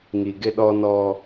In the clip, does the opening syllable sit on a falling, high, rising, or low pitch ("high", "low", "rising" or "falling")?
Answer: low